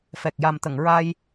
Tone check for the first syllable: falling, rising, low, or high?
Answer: low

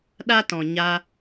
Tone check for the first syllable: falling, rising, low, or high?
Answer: high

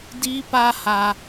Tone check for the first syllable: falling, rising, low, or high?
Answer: high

